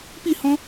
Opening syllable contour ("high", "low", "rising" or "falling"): falling